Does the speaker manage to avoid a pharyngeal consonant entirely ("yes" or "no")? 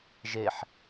no